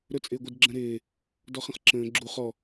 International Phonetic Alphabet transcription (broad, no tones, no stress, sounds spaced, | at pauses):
ɾ ɵ t͡sʼ ɪː ɡʷ ɪ d ɡ͡ǁ ə̃ ɾ ɪː | d ɔ χ ə̃ χ ǁ ə̃ː ɡ͡ǁ u χ ɔ